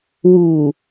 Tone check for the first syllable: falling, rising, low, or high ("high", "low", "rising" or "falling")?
low